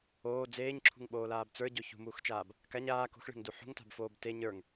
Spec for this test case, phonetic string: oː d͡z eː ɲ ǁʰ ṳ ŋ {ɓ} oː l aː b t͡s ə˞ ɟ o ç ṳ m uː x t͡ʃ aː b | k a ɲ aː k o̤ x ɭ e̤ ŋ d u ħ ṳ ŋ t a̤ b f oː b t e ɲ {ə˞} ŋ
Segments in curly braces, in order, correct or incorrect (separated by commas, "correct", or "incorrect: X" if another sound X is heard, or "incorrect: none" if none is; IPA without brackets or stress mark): correct, correct